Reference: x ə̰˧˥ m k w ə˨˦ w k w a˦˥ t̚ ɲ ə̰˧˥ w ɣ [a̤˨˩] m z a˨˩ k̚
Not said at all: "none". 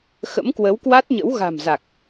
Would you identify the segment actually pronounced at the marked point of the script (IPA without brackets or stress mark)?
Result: a̤˨˩